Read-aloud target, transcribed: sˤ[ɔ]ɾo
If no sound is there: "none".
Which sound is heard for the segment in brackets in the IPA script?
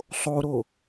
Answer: o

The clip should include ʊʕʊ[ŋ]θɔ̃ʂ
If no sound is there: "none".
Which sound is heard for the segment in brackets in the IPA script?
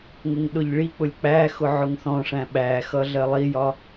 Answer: ŋ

